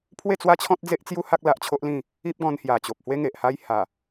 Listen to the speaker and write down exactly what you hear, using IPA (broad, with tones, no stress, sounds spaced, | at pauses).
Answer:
pʰ w e˥˧ t͡s w a˦ t͡ɕʰ ɔ̃˦ t̚ d͡z e˦ ʔ t͡s j u˦ h a˦ k̚ l a˨ ʔ t͡ɕʰ o˦ ʔ l ĩ˥˧ | i˦ p̚ ɡ ɔ̃˧ n h j a˨˩ t͡ɕ o˨ p̚ h w e˦ ŋ e˨ ʔ h a˦ j h a˨˩